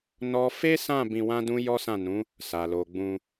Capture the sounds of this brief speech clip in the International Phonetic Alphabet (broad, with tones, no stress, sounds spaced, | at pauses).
n ɔ˦ f e˦ s ã˦˨ b ĩ˧ w ã˦ d ũ˦ j ɔ˦ s ã˦˨ n ũ˨˦ | s a˨ l o˨ ɡ͡b ũ˧